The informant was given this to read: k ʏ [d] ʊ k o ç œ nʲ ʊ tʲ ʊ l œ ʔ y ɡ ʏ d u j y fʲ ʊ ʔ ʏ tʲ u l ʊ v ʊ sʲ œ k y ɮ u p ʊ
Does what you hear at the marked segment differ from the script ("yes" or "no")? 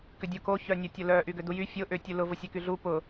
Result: yes